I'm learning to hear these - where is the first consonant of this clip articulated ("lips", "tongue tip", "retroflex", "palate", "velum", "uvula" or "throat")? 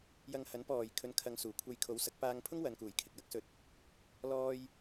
palate